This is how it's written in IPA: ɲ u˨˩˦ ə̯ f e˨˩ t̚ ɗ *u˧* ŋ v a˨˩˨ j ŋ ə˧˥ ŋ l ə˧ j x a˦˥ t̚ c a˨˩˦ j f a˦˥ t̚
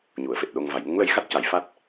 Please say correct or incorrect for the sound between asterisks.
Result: incorrect